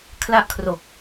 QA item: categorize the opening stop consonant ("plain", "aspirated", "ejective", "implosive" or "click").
aspirated